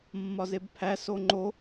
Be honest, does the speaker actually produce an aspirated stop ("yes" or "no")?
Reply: yes